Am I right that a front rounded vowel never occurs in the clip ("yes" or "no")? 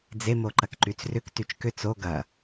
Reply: no